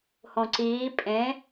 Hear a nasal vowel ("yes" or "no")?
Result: yes